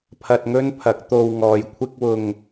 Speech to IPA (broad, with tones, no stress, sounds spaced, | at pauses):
pʰ ɐ˧ t̚ ŋ ɵ˥ n pʰ ɐ˨˥ k̚ t̪ o˧ w ŋ ɔː˨ j kʷʰ ɪ˥ k̚ w ʊ˧ ŋ